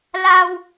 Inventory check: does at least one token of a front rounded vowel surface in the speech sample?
no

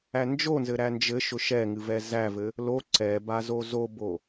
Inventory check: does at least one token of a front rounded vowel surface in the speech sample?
no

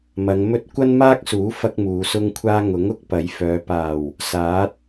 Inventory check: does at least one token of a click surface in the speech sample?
no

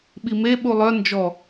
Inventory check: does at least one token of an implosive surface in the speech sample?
yes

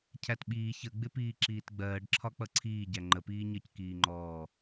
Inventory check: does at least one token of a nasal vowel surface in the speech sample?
no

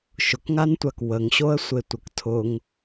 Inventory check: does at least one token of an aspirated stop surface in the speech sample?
yes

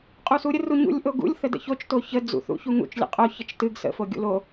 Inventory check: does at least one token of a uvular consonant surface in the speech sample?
yes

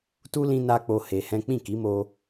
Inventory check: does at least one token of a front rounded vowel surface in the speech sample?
no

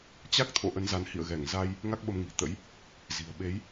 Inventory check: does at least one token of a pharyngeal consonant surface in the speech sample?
no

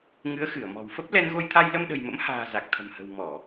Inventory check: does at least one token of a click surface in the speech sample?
no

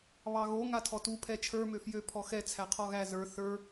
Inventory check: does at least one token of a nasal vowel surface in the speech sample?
no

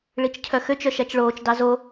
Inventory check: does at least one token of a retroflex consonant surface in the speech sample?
yes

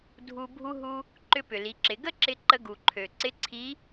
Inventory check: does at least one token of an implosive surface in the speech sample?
no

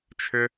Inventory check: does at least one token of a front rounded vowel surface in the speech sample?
yes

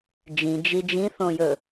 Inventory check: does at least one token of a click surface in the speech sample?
no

